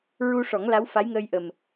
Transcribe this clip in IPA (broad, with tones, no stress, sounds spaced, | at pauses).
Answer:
ɹ u˧ ʂ ɔ˨˩˦ ŋ l a˧˥ w f a˧˥ j ŋ əː˧ j ʔ ə˨˩ m